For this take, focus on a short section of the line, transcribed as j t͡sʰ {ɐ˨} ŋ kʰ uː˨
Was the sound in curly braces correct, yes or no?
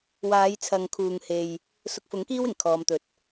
yes